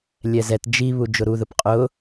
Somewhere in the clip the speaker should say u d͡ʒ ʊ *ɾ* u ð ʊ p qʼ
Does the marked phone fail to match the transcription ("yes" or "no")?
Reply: no